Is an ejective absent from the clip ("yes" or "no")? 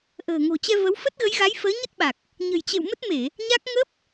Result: yes